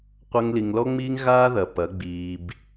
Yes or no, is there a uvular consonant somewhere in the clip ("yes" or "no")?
yes